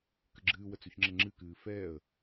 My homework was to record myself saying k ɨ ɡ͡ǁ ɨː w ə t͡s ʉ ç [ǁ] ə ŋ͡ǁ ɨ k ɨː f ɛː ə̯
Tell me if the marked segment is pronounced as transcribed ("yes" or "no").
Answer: no